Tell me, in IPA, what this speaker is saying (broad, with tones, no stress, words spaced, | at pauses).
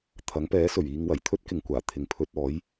t̪ʰɐ˨˥ŋpɛː˨˥sɵ˨˩ɥiː˧ŋ wɐ˨˩jt̪ʰɵ˥t̚kɪ˨ŋkʷaː˨˩ t̪ʰɪ˨ŋpʰɵ˧t̚ɔː˨˥j